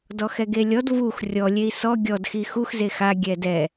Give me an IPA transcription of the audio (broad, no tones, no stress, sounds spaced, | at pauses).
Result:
d ɔ x ɛ ɡ e lʲ ɔ d v u x rʲ ɔ lʲ e i̯ s ɔ ɡʲ ɔ d x i x u x z e x a ɡʲ ɛ d ɛ